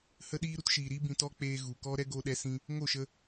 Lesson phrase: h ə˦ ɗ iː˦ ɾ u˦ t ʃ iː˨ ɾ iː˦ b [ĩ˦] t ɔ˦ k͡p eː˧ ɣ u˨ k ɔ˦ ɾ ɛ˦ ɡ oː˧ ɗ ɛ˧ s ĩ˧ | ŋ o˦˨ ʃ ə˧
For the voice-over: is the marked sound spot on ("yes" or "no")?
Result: no